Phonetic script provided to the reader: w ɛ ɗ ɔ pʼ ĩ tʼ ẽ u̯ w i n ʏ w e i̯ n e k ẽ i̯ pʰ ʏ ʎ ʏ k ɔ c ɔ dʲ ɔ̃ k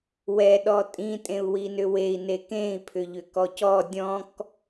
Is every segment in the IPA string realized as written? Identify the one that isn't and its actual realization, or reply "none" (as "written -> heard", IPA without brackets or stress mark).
pʼ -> tʼ